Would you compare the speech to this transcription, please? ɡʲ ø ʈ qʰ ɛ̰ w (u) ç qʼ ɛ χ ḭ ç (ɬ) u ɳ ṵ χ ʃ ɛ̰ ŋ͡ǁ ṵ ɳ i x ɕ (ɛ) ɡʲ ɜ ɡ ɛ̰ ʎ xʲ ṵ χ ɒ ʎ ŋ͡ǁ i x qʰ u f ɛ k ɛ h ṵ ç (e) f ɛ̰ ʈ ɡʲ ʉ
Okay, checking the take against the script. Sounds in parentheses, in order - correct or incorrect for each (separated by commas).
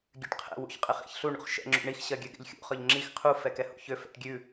incorrect, correct, incorrect, incorrect